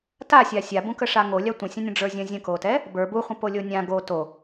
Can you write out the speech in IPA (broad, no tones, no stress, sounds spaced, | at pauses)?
t a sʲ a sʲ a b ũ k ə ʂ a ŋ o lʲ a tʷ ə̃ sʲ ə̃ nʲ ə̃ ɖ͡ʐ ə˞ zʲ ə̃ zʲ ə̃ k o t ɛ | b ə˞ b u χʷ ə̃ p o lʲ o nʲ ã ɡ o t o